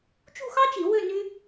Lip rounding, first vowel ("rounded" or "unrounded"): rounded